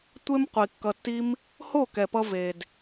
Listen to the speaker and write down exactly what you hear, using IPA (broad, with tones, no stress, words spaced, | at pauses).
tʷe˦mqʷi˨ kːʌ˧tːi˦m | ho˦˨kɛ˨pʌ˧ ve˨d